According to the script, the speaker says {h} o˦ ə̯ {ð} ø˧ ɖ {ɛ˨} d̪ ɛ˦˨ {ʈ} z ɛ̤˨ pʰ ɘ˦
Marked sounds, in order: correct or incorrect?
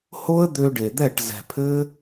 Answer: correct, incorrect, incorrect, correct

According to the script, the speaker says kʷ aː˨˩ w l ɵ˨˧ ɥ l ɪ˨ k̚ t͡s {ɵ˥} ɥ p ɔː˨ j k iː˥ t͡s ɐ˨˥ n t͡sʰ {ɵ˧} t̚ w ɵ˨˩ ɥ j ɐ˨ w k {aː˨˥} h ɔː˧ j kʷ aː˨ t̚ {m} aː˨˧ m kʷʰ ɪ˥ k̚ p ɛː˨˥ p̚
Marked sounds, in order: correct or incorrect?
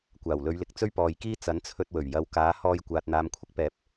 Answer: correct, correct, correct, incorrect

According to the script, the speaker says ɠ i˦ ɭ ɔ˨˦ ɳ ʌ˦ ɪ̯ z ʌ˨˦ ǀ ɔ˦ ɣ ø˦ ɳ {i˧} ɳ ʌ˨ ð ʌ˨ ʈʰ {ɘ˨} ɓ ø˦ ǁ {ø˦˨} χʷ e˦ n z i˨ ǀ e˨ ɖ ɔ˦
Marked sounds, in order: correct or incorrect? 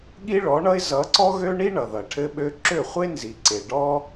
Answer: incorrect, incorrect, correct

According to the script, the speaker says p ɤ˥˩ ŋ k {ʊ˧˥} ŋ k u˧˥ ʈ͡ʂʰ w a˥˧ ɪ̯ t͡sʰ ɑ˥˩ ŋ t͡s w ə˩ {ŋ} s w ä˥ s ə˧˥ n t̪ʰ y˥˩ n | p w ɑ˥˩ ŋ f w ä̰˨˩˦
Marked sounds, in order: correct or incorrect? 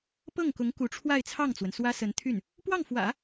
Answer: correct, incorrect

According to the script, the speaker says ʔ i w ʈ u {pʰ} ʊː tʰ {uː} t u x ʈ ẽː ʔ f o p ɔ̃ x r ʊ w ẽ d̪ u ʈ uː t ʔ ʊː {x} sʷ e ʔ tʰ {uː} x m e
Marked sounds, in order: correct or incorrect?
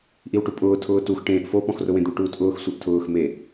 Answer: incorrect, incorrect, correct, incorrect

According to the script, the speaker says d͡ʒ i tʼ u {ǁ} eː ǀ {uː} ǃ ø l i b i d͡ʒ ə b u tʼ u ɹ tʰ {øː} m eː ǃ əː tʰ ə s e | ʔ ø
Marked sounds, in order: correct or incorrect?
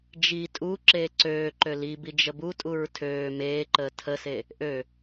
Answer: correct, incorrect, correct

